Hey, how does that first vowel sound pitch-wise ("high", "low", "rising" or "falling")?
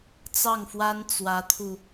falling